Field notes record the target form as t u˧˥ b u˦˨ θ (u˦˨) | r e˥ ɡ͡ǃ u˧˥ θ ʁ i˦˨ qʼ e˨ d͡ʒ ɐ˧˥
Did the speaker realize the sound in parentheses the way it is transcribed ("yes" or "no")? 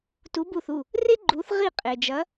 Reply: yes